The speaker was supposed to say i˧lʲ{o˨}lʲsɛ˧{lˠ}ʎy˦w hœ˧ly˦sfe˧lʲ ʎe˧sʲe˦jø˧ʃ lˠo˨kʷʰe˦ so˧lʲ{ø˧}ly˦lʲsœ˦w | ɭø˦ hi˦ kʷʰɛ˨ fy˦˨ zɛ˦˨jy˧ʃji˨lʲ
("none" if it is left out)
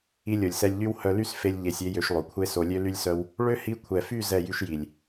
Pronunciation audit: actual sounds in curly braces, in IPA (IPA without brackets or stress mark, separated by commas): o˨, lʲ, ø˦